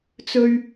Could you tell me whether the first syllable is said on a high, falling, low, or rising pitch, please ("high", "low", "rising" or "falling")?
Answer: high